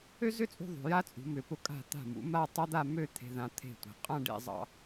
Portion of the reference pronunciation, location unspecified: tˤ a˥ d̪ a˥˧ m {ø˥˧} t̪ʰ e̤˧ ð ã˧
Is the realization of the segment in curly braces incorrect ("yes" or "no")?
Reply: no